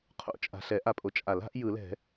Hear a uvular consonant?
yes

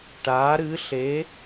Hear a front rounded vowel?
no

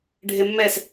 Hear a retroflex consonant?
yes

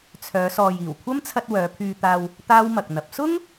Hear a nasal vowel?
no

